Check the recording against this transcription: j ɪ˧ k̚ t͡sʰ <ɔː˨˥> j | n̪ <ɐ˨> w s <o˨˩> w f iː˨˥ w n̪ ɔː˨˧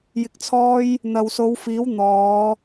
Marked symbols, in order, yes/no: no, yes, no

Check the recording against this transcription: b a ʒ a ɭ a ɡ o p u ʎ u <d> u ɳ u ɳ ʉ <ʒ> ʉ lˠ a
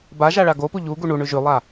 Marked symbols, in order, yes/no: no, yes

